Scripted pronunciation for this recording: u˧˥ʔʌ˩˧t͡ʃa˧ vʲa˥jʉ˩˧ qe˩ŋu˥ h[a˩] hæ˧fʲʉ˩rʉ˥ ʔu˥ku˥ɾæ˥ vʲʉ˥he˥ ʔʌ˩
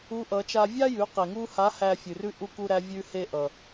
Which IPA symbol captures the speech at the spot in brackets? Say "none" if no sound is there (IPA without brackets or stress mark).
a˧˥